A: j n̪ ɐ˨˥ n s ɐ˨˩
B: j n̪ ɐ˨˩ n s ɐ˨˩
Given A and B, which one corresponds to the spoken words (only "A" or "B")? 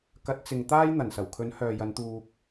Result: B